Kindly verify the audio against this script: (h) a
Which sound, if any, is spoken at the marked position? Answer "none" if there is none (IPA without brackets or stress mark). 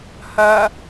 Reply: h